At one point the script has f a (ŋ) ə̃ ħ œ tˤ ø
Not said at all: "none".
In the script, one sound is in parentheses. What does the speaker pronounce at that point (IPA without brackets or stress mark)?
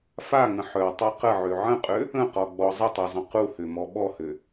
ŋ